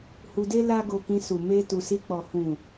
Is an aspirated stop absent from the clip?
yes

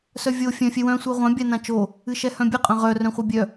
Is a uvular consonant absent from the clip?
no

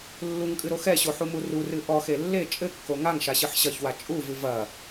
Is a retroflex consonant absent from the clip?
yes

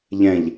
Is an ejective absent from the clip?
yes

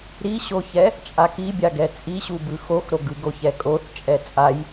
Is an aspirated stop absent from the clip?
yes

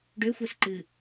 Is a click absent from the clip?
no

